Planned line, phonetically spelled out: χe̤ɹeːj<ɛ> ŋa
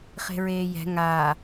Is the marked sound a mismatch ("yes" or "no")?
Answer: yes